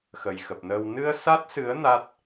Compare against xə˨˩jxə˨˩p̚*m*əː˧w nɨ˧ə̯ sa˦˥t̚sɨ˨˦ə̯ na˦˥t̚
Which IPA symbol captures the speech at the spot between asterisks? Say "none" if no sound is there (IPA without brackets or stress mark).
n